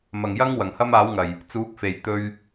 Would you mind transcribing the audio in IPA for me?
m ɐ˨˩ ŋ j ɐ˥ ŋ w ɐ˨˩ ŋ h ɐ˥ m aː˨˥ w ŋ ɐ˨˩ j | t͡s uː˨˥ k̚ f e˨˩ j t̪ ɵ˨ ɥ

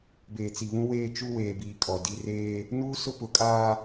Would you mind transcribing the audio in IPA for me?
b eː˨ t͡s i˨ β ũ˦ w eː˦ t͡ʃ u˦ w eː˨ b iː˨ kʼ ɔ˨ d i˨ r eː˦ | n uː˦ s ʊ˦ p ʊ˨˦ kʼ aː˦

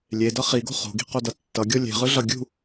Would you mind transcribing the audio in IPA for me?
lʲ e d ʌ χ i ɡ o̤ χ o̤ ɡ i̤ q o d ʌ tː ʌ ɡʲ o lʲ e̤ ʁ ɯ ɮ ʌ ɡʲ ṳ

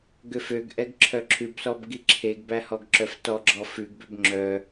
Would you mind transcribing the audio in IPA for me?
ɡ ø f ø ɡ ʔ ɛ ɡ ǁʰ œ ǁʰ ʉ b s ɔ b ɡ i ǁʰ e ɡ b æ h ɔ ɡ ǁ œ f t ɔ ɡ͡ǁ ɔ f ʉ ɡ b ø b ŋ͡ǁ œ

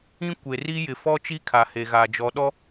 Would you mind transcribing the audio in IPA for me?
ĩ˦ kʷ e˨ r i˦ j ɪ˨ f ɔ˦ t͡ʃ i˦ kʰ a˨ h e˨ ɣ aː˨ d͡ʒ ɔ˨ ɗ ɔ˦

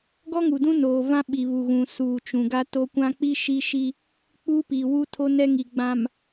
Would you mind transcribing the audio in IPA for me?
ɡ ɔ˦ ŋ u˨ d ũ˦ n oː˨ v ã˦ ɓ i˨ β u˨ ɣ ũ˨ s uː˨ t͡ʃ ũ˨ ɡ a˦ t o˦ kʷ ã˦ k͡p i˦ ʃ i˦ ʃ i˦ | k͡p uː˦ p i˨ w u˦ tʰ o˦ n ɛ˦ ŋ i˨ ɡ͡b ã˨ m

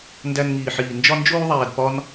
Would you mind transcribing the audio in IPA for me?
n d æ˧ n ŋ iː˨ ħ iː˨ n d͡ʒ ɒ˧ n d͡ʒ oː˧ ðˤ æː˨ d p ɒ˦ n

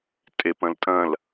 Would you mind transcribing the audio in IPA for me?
tʼ e p ɐ̃ l tʼ ɐ̃ l

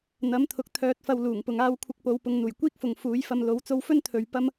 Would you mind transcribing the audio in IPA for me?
n̪ ɐ˨˥ m t̪ʰ ʊ˨ k̚ t̪ʰ œː˧ t̚ f ɐ˧ w l uː˨˩ ŋ p ʊ˨ ŋ aː˧ w kʷʰ ɪ˧ k̚ p o˨˧ w p ʊ˨˧ ŋ n̪ uː˨˩ j kʷ iː˥ k̚ f ʊ˨ ŋ f uː˨˥ j f ɐ˧ m l o˨˥ w t͡s o˧ w f ɵ˥ n t̪ʰ ɵ˨ ɥ p ɐ˥ m

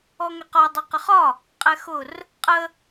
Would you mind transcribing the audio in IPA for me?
ɔ ŋ ɛ q ɒ dˤ ʌ q ə χ ɒ | qʼ ɛ x ʊ r | qʼ ə

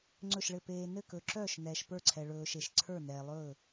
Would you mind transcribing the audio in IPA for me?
ŋ͡ǀ ɵ˧˩ ʃ ɭ ɘ˧˩ p eː˩ n ɘ˧˩ k ɵ˩ ǁ œː˧˩ ʃ n ɛː˩ ʃ p ə˞˧˩ ǀʰ ɛ˩ ɭ ɵː˩ ʃ e˩ ʃ ǀʰ ə˞˧˩ n ɛː˩ lˠ ɵː˧˩

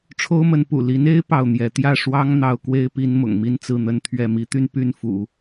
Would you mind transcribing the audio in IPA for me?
ʈ͡ʂʰ o˥ ʊ̯ m ə˧˥ n p ṵ˨˩ l i˧˥ n e˥ ɪ̯ p ɑ˥˩ ʊ̯ n̪ j ɛ˧˥ t̪ j ä˥˩ ʂ w ɑ˥ ŋ n̪ ɑ˥ ʊ̯ k w e˥ ɪ̯ p i˥ n m ʊ̰˨˩ ŋ m i˥ n t͡s ɹ̩˥˩ n̪ ə˥ n t̪ʰ ɥ ɛ˥˩ m i˧˥ t̪ y˥˧ n p y˥˩ n f ṵ˨˩˦

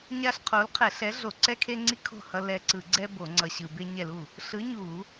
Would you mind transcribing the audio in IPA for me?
ɲ a˦ ɬ qʰ o˨˥ l qʰ ɛ˧˩˧ ɬ ɛ˨˥ ɮ o˧˩˧ ǀ ɛ˦ kʰ e˦ ŋ͡ǀ i˦ kʰ o̤˥˩ h ʌ˦ l ɛ˧˩ ǀ ɯ˧˩˧ ɡ͡ǀ ɛ˦ b o˧˩˧ ŋ͡ǀ ʌ˧˩ ɕ ɯ˧˩˧ b e˦ ɲ ɛ˥˩ l u˥˩ | ɬ ɯ˨˥ ɲ u˧˩˧

